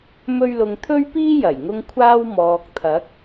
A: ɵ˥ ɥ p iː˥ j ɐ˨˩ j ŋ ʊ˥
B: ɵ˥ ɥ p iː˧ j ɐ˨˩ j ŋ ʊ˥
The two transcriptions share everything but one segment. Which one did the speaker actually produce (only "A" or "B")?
A